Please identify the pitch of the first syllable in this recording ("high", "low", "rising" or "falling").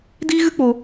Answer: high